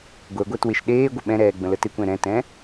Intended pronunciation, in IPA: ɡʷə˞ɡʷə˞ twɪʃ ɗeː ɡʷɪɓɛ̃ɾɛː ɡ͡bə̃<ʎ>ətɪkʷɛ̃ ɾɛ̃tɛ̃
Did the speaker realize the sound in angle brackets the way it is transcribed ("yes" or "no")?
no